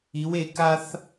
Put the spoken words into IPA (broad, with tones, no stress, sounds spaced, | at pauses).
i˨˦ w e˨˦ k a˦ θ